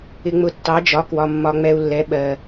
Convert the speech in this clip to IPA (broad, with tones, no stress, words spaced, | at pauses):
ɪ˧ŋ͡mʊ˧ tːɑ˨˥d͡ʒɒ˨˥ kwɒ˧ mːɒ˧ŋ͡mɛ˧u̯lːɛ˨˥ ɓɜ˧